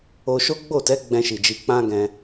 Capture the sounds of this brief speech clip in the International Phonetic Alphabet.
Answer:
o˧ʃo˦ ɡ͡bo˦˨tɛ˨˦ ɡ͡bɛ̃˧ʃi˨d͡ʒi˨˦ k͡pã˦ ɡɛ̃˧

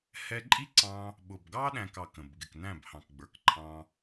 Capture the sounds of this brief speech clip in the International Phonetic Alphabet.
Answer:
hɛ˧ǃʼi˦ǀɑ̃˧ | ɓʊ˨bɡɑ˦ ɗæ̃˦kɑ˦˨kə̃˨b ɡɪ˨knæ̃˦˨b hɑ̃˨kɡ͡bə˞˨kǃʰɑ̃˧

